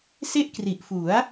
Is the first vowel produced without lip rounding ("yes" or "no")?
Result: yes